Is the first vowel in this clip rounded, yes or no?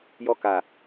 yes